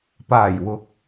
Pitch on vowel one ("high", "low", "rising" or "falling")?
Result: low